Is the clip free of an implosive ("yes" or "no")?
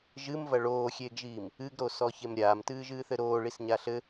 yes